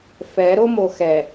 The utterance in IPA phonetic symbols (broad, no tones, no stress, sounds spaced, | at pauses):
f ɛ ɾ o m o x ɛ